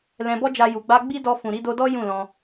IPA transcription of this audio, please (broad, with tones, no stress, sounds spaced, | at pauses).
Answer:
l ɛ̃˨ b ɔ˧ d͡ʒ a˨ j u˨ ɡ͡b a˧ ɡ͡b i˦ d ɔ˧ f ũ˨ ɾ i˨˦ d o˧ d ɔ˦ j ũ˦˨ l ɔ̃˧